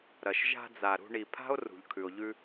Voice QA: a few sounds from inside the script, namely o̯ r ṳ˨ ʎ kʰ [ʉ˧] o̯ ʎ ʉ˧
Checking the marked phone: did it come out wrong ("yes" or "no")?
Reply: yes